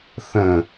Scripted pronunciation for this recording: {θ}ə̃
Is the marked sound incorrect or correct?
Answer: correct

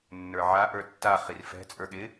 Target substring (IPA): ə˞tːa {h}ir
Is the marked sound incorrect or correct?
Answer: incorrect: χ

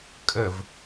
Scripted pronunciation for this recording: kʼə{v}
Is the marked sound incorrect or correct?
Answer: correct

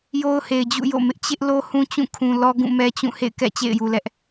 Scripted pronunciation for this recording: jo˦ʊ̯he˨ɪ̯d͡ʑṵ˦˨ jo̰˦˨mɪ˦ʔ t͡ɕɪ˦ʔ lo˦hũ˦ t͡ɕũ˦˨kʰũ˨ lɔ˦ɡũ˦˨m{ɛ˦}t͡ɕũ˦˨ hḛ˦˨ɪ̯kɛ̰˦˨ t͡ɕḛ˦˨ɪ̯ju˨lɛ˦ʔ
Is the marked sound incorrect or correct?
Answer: correct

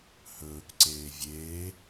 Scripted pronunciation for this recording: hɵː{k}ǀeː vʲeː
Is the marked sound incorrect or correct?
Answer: correct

